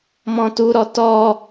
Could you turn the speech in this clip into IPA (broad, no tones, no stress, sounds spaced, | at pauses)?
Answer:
m ɔ̃ t u ɾ ɔ t ɔ